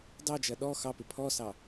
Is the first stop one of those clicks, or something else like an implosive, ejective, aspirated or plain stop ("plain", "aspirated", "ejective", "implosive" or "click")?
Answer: plain